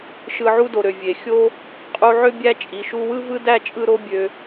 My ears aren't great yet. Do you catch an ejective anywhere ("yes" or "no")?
yes